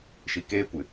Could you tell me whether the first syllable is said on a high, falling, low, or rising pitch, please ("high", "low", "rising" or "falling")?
low